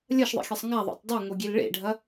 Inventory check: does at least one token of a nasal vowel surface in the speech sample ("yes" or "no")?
no